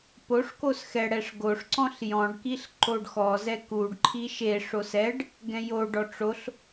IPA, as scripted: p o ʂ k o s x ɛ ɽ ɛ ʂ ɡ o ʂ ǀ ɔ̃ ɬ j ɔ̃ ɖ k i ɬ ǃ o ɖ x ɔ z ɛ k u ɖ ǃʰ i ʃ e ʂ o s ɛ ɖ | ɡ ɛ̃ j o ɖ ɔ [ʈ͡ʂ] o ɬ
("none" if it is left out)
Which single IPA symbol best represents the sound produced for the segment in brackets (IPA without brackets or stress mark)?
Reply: ʈ͡ʂ